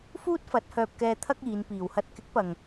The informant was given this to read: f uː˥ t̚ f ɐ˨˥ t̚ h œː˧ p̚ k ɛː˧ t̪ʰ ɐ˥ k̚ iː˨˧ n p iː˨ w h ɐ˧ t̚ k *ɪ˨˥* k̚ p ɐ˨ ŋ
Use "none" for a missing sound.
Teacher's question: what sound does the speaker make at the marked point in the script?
ɪ˨˥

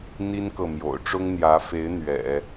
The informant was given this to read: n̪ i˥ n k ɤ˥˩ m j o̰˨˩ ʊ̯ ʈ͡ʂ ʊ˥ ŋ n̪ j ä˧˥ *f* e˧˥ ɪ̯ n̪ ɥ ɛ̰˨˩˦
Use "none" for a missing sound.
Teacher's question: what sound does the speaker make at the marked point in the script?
f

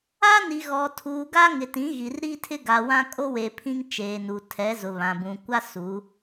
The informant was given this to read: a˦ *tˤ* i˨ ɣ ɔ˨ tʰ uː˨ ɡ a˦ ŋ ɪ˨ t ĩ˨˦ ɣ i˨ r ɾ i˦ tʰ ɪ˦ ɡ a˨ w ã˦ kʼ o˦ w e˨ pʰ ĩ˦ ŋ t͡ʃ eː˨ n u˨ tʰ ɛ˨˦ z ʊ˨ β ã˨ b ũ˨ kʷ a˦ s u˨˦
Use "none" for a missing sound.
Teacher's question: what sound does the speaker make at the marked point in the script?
n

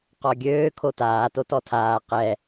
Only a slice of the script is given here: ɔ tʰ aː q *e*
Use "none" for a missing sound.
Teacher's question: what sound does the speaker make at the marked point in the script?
ɛ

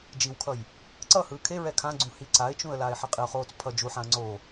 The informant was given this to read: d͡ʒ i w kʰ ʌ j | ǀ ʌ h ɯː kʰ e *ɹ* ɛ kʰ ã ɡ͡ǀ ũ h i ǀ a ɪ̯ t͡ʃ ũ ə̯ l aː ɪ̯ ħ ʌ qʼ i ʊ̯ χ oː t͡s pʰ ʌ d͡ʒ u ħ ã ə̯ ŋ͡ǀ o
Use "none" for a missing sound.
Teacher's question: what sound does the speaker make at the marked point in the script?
ɹ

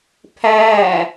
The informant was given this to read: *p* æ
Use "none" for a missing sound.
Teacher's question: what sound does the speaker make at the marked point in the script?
pʰ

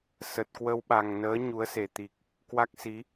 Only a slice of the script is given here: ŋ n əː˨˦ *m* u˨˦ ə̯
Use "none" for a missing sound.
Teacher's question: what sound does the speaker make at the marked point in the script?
ɲ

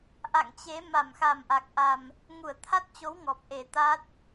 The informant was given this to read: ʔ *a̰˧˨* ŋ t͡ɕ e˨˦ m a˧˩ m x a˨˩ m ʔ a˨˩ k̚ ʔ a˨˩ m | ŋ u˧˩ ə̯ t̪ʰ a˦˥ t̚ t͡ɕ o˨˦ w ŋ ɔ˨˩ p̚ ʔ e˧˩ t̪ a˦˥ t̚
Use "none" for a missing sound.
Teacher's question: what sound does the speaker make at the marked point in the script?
a̰˧˨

